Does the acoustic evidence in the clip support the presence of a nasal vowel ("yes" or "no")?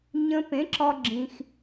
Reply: yes